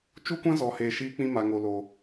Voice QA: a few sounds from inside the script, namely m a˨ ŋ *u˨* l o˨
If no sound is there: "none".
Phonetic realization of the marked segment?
o˨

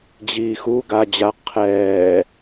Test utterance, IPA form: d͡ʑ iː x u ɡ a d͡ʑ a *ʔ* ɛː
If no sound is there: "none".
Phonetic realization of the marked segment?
qʰ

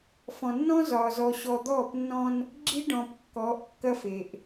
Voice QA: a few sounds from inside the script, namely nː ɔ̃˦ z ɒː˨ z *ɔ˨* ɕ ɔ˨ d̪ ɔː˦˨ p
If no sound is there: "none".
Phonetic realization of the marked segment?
ɔ˨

